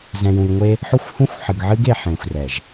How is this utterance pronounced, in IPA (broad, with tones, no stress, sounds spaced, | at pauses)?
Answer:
z ɛ̃˨ j ũ˨ j ŋʷ e˦ | ħ o˦ xʷ h ũ˦ xʷ ħ ɨ˨ ɡ ʕ ɨ˦ ɡ e˨ ħ ẽ˨ xʷ r ɛ˨ ʒ